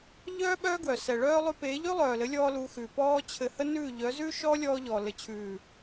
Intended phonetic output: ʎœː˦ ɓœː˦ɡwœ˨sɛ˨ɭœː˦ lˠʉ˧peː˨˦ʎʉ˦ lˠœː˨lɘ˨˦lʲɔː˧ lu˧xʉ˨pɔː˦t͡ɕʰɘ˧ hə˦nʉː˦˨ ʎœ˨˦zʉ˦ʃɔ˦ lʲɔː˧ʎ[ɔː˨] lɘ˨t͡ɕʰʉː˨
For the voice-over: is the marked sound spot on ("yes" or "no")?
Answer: yes